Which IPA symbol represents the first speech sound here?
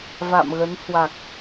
v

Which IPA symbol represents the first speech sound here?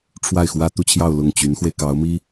ʈ͡ʂʰ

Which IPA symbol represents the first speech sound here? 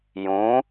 j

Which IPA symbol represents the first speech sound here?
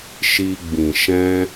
ʃ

